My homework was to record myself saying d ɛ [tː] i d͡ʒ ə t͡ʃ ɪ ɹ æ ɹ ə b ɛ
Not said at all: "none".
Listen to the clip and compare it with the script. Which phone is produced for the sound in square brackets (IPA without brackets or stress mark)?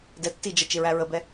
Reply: tː